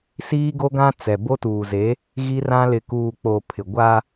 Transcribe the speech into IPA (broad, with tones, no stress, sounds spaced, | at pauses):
s iː˦ ɡ o˦ ɡ ã˦ t͡s ɛ˨ b o˦ t uː˨ z e˨˦ | ɣ i˦ r ã˦ l ɪ˨ k uː˨ k͡p o˨ pʰ ɪ˨ ɡʷ a˦